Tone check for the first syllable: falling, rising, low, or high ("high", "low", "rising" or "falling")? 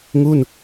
falling